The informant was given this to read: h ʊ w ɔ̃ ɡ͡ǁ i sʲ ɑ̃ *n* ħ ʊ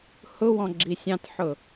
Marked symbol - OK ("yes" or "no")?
no